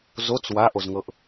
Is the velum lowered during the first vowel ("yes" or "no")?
no